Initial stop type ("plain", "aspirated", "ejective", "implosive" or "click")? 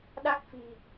implosive